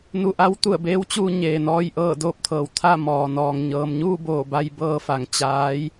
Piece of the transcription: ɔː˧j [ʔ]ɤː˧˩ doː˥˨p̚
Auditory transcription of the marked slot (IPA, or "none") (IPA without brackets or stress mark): ʔ